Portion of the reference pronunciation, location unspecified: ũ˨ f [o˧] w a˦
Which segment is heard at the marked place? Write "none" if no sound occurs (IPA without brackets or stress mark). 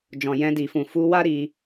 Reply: u˧